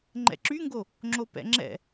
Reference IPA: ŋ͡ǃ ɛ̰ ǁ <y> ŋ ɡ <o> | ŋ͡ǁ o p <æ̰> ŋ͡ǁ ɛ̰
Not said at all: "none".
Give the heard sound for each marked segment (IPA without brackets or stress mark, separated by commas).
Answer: y, o, ɛ̰